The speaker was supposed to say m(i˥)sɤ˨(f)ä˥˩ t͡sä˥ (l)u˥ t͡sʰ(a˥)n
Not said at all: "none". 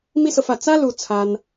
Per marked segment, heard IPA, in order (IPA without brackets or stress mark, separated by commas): i˥, f, l, a˥